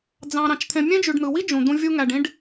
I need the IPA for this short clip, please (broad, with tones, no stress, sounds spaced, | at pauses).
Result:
d͡z ɑ̃˨ ɾ ɑ̃˨ t͡ʃ t̪ʰ ẽ˨ mʲ ẽ˦ d͡ʒ y˨ ɖ n̪ ɯ˨ w i˦ d͡ʒ ũ˨ d̪ ũ˦ vʲ u˦ ŋ æ˨ ɖ ĩ˦ ɖ